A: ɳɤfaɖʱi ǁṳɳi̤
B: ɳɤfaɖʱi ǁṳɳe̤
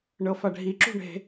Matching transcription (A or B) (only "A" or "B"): B